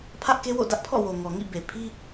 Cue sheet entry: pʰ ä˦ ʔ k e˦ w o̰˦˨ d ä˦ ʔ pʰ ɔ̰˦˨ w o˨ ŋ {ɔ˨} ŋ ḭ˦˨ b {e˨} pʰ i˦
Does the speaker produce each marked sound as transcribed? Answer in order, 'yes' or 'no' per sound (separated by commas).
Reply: yes, yes